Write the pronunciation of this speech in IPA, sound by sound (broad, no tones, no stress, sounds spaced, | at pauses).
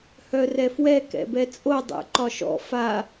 h œ r ɛ f w ɛ k ɛ̰ b ɛ t͡sʼ o dˤ ɛ̰ ǃ ɒ ʃ ɔ̰ f a